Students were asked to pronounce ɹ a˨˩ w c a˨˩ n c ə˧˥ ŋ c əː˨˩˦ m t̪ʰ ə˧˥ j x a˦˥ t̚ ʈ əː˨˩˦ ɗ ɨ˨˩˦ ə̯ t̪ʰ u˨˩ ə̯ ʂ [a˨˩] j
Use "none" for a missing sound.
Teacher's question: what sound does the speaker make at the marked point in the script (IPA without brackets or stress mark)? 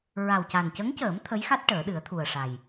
a˨˩